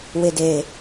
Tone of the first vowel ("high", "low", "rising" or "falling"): low